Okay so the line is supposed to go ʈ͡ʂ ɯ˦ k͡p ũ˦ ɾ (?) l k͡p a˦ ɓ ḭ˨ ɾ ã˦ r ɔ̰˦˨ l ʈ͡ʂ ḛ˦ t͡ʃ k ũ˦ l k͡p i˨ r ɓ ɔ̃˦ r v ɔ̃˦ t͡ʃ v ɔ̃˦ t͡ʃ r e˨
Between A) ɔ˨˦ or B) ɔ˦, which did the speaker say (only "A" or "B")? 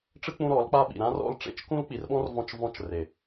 A